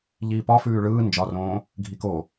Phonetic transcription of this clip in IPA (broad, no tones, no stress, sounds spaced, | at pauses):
ʎ iː p ɒ f ʉː ɭ ɯː n d͡ʒ ɒ r õː | ɡʱ i k o